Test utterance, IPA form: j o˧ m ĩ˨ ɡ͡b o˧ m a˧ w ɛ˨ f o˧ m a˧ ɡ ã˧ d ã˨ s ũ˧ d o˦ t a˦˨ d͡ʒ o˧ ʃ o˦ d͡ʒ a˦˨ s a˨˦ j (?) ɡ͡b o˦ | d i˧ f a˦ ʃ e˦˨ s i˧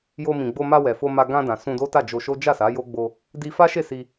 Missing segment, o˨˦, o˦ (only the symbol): o˦